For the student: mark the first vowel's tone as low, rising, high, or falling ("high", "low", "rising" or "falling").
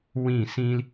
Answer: falling